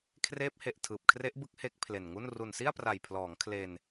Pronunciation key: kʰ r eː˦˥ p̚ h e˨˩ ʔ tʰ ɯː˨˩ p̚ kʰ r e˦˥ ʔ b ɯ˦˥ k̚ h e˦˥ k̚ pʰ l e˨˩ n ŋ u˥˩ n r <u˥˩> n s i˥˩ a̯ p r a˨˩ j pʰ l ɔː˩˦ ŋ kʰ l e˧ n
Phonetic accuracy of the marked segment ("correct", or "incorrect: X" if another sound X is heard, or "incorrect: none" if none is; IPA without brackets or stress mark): incorrect: u˨˩